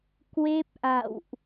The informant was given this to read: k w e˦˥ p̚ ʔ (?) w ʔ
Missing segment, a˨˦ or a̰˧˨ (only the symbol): a̰˧˨